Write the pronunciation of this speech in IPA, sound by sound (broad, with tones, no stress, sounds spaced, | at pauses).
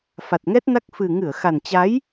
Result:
f a˨˩ t̚ ŋ ɛ˦˥ t̚ n a˦˥ k̚ f ɨ˨˩ ŋ ɨ˧˩ ə̯ x a˨˩ n t͡ɕ a˨˦ j